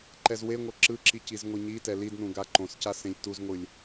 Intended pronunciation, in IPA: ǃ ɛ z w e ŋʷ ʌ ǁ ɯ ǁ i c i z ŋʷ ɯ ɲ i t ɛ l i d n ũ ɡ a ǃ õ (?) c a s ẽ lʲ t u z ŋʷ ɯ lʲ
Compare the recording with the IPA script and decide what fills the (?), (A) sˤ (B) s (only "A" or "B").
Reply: B